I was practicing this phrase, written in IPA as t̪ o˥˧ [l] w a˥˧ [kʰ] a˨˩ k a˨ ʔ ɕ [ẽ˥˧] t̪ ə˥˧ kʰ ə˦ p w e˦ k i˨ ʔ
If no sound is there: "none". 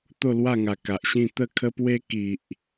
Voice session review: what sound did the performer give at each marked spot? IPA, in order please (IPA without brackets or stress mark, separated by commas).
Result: l, ŋ, ĩ˥˧